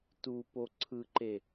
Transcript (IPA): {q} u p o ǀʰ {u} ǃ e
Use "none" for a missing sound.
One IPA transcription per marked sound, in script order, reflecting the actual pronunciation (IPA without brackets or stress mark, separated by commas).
t, ɯ